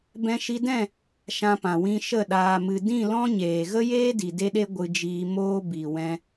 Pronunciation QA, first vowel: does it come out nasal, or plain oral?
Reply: nasal